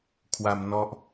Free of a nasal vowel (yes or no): yes